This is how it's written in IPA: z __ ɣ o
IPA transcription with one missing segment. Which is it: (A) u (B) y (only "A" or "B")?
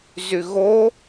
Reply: B